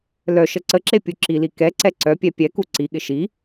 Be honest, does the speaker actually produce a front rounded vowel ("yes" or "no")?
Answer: yes